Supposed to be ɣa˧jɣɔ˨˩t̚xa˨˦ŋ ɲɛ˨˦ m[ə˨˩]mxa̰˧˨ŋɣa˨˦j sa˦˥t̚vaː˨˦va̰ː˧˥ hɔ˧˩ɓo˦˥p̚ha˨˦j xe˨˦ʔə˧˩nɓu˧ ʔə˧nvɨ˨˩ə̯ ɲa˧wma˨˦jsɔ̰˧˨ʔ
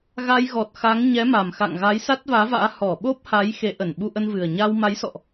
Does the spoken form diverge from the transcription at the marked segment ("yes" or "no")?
yes